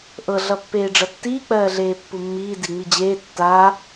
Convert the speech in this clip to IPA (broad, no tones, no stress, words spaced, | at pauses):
ʔɤ ɮʌpːeːɖ͡ʐʌtːiː k͡pɜːɮeːpːumːiː diŋ͡mid͡ʑeː tːaː